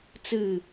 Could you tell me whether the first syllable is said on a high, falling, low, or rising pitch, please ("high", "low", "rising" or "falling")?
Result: falling